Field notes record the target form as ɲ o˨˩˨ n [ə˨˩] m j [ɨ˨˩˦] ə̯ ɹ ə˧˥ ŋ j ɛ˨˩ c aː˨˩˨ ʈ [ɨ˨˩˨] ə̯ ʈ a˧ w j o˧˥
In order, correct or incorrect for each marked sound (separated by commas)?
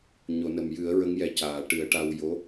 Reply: correct, correct, incorrect